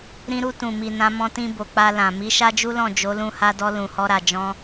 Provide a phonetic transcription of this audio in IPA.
ɾĩ˧ɾu˧ tũ˨mi˨ nã˧mɔ̃˧tĩ˧bo˨ k͡pa˧lã˨ mi˨˦ʃa˦d͡ʒu˦lɔ̃˦˨ d͡ʒo˨˦lũ˧ha˧dɔ˧ lũ˨hɔ˧ɾa˨ d͡ʒɔ̃˧

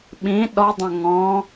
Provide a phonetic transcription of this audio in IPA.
ɓĩ ɗɔdˤõ ŋɔ̃

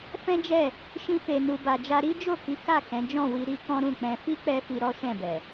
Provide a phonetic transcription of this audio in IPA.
fɛ̃˦d͡ʒɛ˦˨ | ʃĩ˧fe˨ nu˨ba˨d͡ʒa˧ ɾi˦d͡ʒo˦˨ki˨˦ ka˦˨ kɛ̃˨˦ d͡ʒɔ̃˦˨wi˧ ɾi˦kɔ̃˦ ɾũ˦˨k͡pɛ̃˧ fi˦k͡pɛ˧ fi˧ɾɔ˦ʃɛ̃˦˨bɛ˨

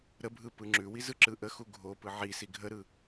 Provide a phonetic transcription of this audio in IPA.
ɾəbʱɯ pɯŋ͡ǁʉwi zɯǁɯʔəxu ɡʱopɯ ʕi siɡʱəɾɯ

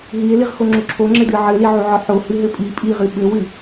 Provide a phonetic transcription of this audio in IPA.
ɦie̯liʁxoŋ͡ǁu ǁʰoŋ͡ǁɘdɨ ʕɘliʕuʕɔ ħohɨɦɘ pʼi pʼiʁɨ ɓɘwɨ

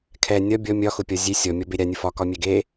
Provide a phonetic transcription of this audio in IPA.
kʰɛ nʲɒ bʲɔ mʲɒxʊpʲɒ zʲe sʲɔmʲɔbe ɾʲanʲʊ fɒkɒmʲɛ ɡe

